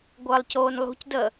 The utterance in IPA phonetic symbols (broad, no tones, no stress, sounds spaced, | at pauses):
ɡʷ əː lˠ c oː n lˠ ṳ c d əː